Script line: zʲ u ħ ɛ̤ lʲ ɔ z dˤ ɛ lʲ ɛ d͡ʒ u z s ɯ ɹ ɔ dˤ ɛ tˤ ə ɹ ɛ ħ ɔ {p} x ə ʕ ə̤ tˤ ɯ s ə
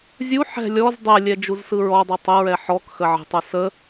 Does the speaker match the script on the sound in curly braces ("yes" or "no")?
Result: no